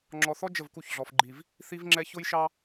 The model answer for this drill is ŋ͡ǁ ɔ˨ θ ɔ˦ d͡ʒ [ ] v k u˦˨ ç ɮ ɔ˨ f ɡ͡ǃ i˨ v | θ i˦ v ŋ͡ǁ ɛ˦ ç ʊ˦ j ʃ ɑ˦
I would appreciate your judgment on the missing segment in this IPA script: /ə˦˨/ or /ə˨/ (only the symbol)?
ə˦˨